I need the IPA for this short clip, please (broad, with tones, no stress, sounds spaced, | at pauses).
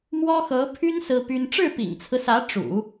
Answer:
m w ɔ˥ x ɤ˧˥ pʰ y˥ n s ɹ̩˥ p y˥ n ʈ͡ʂ ɻ̩˥˩ p ḭ˨˩ ŋ t͡sʰ ɹ̩˦ s ä˧˥ ʈ͡ʂ ṵ˨˩˦